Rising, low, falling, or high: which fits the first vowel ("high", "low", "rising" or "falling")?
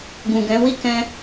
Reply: low